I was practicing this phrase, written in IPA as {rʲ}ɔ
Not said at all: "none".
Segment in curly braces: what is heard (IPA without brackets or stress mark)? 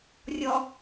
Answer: rʲ